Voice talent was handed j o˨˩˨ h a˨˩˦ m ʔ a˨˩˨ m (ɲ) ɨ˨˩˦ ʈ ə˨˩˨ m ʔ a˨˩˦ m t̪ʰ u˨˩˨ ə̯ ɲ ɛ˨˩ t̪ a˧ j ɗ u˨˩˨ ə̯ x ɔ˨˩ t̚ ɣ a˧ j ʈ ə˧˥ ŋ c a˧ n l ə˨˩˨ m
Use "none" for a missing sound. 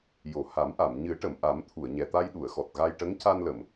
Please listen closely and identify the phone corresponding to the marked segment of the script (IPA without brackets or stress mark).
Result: ɲ